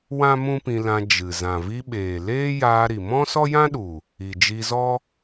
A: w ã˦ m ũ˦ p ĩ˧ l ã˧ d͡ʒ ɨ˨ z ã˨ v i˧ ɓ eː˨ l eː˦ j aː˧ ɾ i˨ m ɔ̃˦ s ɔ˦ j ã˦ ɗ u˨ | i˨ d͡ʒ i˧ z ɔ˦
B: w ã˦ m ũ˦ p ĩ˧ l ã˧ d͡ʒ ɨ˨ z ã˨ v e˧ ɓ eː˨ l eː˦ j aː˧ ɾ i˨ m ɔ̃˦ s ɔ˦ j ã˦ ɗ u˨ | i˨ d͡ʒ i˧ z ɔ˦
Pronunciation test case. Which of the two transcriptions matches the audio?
A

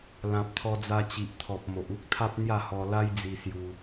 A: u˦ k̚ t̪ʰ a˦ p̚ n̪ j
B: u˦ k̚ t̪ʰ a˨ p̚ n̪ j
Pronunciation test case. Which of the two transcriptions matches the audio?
A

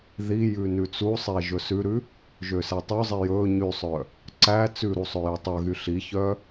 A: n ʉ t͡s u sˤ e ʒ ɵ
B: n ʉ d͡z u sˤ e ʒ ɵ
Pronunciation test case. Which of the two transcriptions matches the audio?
A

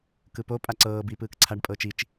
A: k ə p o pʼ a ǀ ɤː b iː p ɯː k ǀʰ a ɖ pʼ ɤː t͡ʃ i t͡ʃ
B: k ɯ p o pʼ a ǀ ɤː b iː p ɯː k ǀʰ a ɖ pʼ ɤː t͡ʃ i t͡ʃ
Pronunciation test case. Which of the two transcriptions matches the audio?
B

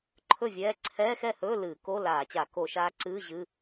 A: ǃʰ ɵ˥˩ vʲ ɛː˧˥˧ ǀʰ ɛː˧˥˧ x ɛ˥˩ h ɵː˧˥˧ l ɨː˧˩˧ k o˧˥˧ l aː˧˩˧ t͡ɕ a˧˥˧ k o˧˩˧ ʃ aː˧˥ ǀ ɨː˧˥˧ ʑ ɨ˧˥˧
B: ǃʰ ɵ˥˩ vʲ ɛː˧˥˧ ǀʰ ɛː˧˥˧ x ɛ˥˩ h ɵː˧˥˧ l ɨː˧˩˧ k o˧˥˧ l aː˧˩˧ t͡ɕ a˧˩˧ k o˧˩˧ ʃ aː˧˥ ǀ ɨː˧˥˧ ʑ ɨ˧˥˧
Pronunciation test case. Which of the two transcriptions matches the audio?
B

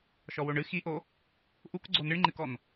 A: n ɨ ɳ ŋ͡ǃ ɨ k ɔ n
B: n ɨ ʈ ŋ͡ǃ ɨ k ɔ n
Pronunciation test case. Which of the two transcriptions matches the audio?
A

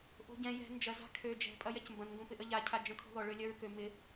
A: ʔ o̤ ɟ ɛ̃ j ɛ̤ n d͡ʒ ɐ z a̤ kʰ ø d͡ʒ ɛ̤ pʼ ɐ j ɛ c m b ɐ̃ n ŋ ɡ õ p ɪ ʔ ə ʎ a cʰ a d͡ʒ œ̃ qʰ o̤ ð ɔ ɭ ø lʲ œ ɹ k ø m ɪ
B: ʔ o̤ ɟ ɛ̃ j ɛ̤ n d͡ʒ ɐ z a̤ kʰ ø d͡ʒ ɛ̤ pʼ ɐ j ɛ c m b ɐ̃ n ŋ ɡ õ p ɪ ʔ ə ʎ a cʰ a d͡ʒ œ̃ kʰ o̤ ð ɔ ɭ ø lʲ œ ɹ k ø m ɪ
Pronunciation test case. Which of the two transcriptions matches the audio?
B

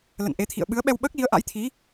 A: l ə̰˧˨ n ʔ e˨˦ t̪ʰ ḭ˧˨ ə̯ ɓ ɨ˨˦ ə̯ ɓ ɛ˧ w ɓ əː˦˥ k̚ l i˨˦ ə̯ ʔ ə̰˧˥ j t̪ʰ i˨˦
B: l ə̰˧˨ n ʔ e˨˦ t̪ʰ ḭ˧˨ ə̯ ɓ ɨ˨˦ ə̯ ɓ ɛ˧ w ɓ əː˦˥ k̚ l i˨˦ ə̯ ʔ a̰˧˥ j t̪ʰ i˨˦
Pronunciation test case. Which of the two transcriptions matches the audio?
B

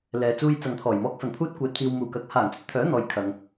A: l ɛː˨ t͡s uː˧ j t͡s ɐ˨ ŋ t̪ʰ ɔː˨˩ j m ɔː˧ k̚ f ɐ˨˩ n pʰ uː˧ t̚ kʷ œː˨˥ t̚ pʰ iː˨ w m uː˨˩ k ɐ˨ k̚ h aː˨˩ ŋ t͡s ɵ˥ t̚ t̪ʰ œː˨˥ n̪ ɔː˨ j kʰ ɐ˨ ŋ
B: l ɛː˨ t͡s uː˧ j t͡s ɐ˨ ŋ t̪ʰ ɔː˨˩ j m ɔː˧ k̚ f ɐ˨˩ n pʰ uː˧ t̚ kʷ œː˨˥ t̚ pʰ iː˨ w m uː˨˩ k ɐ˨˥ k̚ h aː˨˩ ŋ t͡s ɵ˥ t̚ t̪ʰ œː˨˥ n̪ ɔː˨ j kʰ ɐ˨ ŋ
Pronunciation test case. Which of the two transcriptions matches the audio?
A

